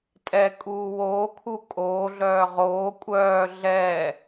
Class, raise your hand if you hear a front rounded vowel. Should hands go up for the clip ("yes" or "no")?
yes